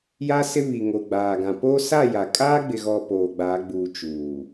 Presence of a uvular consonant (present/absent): absent